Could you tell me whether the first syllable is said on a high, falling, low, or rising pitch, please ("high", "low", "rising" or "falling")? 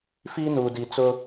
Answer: high